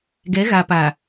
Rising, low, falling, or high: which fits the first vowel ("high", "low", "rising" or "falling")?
rising